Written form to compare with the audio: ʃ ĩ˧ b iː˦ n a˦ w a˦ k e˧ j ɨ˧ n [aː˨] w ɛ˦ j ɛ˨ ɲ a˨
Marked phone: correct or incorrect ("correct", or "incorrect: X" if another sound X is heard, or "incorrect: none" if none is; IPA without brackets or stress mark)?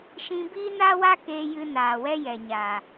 correct